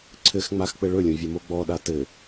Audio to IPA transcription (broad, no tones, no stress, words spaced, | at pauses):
ǀʰɘxŋ͡max k͡pɘɭɵlʲõ vʲəmoɡ͡bɔɗa tɘ